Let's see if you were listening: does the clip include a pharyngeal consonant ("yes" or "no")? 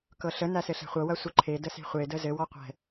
no